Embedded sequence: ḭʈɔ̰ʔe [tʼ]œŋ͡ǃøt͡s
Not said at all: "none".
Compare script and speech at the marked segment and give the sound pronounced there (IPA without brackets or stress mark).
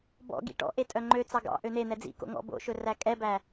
tʼ